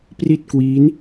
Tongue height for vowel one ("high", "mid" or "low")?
high